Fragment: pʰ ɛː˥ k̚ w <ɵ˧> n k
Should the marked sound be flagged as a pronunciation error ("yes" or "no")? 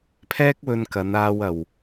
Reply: no